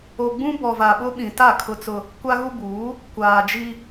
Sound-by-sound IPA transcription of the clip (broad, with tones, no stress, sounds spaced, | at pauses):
o˨ ɡ͡b ũ˦ b ɔ˨ v a˨ ɓ ʊ˦ ɓ ĩ˨ t a˦˨ kʰ ʊ˦ t͡s ʊ˦ | kʷ a˦ ɣ u˦ b uː˨˦ | kʷ aː˨ d͡ʒ i˦